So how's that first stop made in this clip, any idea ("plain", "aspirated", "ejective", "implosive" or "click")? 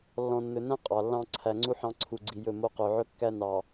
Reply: ejective